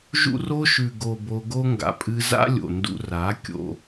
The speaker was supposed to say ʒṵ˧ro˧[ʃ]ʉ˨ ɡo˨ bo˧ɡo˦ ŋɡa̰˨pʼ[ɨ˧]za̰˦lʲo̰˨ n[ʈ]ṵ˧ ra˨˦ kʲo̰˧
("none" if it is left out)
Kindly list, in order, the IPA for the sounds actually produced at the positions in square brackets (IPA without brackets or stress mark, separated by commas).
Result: ʃ, ɨ˧, d